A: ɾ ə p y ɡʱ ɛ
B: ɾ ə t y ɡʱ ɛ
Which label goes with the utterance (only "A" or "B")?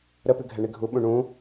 A